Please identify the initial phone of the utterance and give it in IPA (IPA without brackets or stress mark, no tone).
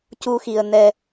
c